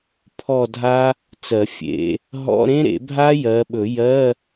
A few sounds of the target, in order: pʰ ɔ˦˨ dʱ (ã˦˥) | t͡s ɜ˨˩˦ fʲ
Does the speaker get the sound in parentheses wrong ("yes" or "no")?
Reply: yes